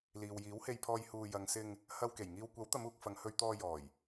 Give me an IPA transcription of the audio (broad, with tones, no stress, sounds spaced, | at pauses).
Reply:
l iː˨ w j iː˨˥ w h e˧ j pʰ ɔː˧ j h uː˧ j ɐ˨ ŋ s ɪ˧ ŋ | h ɐ˧ w k e˨˩ j ŋ iː˧ w kʷ ɐ˨˥ w t̪ ɐ˨˧ m uː˨ k̚ f ɐ˨ ŋ h ɵ˧ ɥ t̪ ɔː˧ j ɔː˨˩ j